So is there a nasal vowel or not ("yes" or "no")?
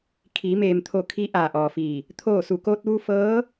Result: no